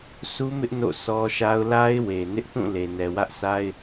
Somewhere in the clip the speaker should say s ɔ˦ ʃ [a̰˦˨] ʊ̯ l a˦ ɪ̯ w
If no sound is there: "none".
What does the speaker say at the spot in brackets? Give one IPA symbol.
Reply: a˦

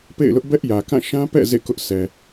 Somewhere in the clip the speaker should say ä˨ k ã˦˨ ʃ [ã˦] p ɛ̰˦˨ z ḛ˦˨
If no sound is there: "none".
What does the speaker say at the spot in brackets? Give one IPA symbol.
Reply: ã˦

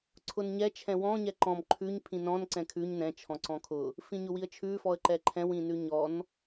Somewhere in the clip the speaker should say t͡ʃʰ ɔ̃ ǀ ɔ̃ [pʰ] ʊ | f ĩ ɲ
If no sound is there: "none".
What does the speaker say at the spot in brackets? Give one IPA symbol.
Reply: kʰ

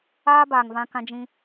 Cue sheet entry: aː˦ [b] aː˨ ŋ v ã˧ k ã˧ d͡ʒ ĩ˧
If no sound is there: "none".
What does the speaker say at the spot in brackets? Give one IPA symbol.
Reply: b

